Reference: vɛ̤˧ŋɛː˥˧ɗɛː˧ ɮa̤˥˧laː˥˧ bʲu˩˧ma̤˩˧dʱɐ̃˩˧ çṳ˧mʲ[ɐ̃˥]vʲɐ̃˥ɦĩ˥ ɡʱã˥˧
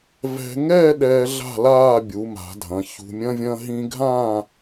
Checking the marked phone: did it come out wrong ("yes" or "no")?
no